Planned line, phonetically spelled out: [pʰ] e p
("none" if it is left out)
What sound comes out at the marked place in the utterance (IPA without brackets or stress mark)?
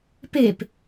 p